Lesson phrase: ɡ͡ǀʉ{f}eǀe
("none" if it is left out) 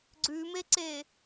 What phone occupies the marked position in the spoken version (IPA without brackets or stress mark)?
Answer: m